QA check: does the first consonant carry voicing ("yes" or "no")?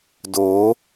yes